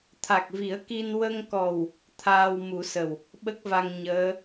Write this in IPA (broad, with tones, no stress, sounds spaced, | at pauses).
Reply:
t̪ʰ a˨˩ k̚ v i˨˩˦ ə̯ k i˧ n w ə˧ ŋ k ɔ˨˩ w | t̪ʰ aː˧ w m u˨˩˦ s ə˨˩ w | ɓ ə˦˥ k̚ v a˧ ŋ ɲ əː˧˥